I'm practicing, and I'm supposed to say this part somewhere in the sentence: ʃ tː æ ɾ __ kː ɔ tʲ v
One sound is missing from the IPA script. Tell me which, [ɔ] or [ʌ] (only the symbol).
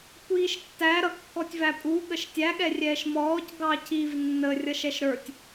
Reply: ʌ